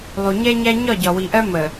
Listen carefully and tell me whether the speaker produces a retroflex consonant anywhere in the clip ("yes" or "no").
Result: no